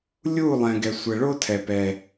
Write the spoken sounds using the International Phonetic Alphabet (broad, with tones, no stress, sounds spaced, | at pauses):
lʲ uː˦˨ lˠ ɛ̃ː˨ ɡ ɛ˨ sʷ ɛ˨ ɭ o˦ tʰ ɛ˨ p ɛ˦